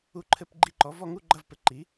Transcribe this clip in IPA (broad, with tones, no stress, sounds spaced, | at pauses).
u˦˨ ǃʰ ɘ˦˨ p ɡ͡ǃ i˦˨ ǃ ɔ˩˥ v ɔ˦˨ ŋ u˧˥˧ ɡ͡ǃ ɐ˧˥˧ v p ɘ˩˥ ǃ i˩˥